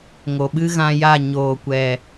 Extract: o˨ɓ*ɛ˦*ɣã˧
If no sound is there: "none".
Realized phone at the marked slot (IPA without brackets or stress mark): ɨ˦